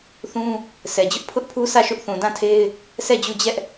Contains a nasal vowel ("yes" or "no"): yes